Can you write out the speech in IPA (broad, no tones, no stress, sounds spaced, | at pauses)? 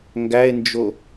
ŋ ɡ æ e̯ n d͡ʒ o